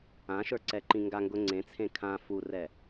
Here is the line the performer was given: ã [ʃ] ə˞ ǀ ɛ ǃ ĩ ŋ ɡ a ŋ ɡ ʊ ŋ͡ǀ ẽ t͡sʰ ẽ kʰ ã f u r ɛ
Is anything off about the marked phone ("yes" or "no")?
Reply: no